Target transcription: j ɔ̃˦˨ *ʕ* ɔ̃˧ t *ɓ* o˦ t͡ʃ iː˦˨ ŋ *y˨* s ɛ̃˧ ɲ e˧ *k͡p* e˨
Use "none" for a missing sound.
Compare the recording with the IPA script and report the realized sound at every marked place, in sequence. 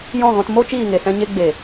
ɣ, m, e˨, ɡ͡b

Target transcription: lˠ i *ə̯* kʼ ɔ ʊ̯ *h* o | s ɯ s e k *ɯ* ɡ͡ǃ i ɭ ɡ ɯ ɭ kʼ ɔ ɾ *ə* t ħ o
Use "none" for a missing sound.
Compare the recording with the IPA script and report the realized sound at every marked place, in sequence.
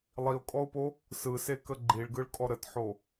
ʊ̯, p, ə, ə

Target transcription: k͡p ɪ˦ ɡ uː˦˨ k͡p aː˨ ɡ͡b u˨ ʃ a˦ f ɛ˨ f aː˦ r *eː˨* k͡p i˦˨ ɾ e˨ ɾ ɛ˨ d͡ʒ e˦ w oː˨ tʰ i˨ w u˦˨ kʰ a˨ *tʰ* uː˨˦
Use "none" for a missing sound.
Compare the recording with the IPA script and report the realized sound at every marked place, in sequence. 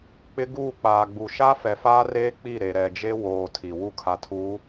eː˦, tʰ

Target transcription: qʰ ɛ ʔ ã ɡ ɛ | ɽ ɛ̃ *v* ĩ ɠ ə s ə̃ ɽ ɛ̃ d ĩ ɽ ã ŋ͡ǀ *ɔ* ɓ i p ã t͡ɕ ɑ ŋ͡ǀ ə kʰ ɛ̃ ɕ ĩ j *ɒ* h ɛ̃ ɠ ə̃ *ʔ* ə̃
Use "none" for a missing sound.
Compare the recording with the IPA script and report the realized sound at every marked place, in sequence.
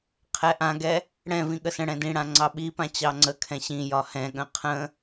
v, ɑ, ɒ, qʰ

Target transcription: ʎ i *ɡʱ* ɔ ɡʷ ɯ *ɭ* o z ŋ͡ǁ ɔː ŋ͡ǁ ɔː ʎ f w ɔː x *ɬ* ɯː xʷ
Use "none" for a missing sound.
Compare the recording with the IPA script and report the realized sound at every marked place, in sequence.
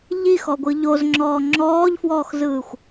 x, ʎ, z

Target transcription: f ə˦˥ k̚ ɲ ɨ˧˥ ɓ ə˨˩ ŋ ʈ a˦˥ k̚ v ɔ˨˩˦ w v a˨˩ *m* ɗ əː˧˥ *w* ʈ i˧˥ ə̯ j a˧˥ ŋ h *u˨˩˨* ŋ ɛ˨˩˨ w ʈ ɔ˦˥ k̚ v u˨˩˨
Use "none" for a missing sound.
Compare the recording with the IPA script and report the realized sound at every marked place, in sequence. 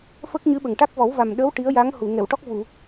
m, w, u˨˩˨

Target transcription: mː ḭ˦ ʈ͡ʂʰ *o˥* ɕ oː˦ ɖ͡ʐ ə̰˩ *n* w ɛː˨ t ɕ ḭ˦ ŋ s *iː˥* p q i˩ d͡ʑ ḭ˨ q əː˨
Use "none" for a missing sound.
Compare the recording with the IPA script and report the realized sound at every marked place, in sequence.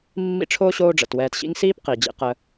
o˥, t, iː˥

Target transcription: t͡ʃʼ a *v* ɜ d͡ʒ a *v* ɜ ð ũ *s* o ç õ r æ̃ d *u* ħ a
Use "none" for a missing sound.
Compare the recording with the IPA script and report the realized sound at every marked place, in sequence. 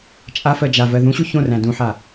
f, v, ɕ, ũ

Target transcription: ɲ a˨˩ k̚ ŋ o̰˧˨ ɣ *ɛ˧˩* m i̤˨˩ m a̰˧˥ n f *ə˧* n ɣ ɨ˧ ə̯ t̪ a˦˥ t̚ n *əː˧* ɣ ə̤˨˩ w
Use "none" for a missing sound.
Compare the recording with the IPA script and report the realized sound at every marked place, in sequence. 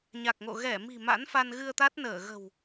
ɛ˧˩, a˧, əː˧˩

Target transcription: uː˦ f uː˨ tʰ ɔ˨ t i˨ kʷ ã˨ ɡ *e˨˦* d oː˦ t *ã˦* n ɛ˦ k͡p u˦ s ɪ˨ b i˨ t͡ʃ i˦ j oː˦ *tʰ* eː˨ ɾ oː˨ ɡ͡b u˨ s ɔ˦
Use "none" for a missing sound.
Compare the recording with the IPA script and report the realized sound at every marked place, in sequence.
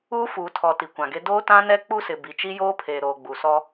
e˦, ã˦, pʰ

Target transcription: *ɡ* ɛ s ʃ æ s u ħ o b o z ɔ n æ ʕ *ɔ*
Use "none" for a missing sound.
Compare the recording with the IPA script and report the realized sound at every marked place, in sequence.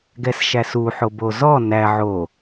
ɡ, o

